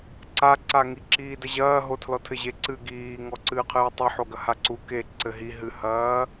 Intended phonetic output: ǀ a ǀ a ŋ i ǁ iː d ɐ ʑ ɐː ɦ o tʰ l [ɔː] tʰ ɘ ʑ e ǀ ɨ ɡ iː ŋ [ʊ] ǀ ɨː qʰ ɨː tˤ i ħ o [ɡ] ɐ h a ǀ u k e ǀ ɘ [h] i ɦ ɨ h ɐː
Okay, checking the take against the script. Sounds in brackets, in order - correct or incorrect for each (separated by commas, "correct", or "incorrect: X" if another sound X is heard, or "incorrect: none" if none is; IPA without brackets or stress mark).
incorrect: ɔ, incorrect: ɔ, correct, incorrect: ɦ